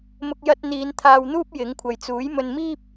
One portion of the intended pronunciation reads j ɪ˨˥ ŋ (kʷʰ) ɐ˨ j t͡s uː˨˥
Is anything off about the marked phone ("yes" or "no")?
no